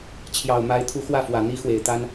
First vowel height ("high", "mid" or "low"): low